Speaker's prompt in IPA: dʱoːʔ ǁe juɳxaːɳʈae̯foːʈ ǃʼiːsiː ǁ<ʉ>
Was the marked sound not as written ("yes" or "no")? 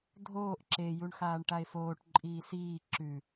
no